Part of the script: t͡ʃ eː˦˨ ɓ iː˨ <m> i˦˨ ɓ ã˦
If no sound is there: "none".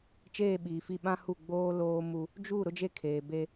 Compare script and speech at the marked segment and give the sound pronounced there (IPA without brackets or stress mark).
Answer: f